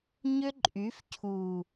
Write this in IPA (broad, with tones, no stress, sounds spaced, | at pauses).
ɲ ʏ˦ ǃʼ y˨˦ f cʰ u˨